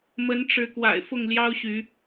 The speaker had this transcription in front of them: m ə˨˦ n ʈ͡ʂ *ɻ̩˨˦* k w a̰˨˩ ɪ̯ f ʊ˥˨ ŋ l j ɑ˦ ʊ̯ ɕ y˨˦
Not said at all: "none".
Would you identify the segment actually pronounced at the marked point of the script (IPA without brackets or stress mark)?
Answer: ɻ̩˨˦